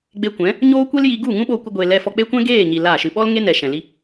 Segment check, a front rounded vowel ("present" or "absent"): absent